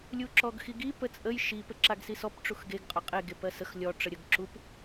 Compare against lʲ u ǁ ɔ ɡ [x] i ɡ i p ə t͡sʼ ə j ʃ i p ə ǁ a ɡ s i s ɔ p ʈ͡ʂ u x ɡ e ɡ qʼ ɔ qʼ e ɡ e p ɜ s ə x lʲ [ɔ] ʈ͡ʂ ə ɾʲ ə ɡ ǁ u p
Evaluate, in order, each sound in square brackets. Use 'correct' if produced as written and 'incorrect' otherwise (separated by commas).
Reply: correct, correct